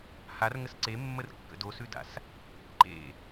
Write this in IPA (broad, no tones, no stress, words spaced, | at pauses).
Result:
har ŋəsǀemːər kːə̰dosʉda̰s | ǃḛ